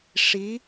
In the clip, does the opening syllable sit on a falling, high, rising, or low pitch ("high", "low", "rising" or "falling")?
rising